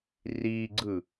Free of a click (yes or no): no